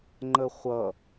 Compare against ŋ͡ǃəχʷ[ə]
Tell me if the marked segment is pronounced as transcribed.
no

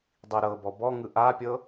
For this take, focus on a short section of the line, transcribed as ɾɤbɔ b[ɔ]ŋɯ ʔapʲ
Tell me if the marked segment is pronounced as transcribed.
yes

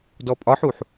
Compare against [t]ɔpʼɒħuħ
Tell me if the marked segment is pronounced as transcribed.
no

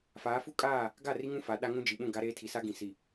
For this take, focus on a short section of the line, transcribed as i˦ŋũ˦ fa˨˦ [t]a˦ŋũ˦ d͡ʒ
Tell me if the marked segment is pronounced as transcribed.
no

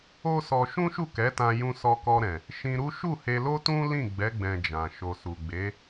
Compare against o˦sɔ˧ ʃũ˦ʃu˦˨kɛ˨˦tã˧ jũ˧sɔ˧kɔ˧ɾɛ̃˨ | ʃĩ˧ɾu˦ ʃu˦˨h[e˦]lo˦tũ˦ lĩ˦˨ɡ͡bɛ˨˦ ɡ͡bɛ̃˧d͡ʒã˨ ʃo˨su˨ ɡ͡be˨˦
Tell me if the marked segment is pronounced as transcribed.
no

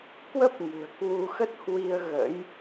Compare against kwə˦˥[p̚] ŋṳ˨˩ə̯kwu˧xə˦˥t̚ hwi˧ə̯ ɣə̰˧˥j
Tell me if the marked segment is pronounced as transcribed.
yes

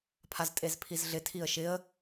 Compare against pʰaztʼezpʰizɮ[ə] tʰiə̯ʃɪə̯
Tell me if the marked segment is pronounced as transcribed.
no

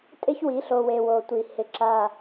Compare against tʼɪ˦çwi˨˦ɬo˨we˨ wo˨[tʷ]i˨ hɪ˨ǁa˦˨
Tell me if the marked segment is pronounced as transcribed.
yes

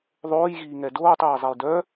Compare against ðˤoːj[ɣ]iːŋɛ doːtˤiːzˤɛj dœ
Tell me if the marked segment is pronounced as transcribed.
yes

